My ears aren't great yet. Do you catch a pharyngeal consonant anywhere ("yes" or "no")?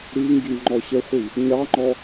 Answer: no